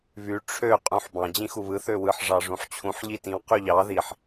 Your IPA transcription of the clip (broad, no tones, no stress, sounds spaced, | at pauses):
β y ʈ͡ʂʰ ø qʼ ũ ħ b ɑ̃ d͡ʑ ĩ x u β ɯ θ ø w ɯ ħ ʐ ɑ ʐ ũ ħ t͡ɕʰ ũ ħ ʎ i t ĩ w q y ʎ ɑ ð i ħ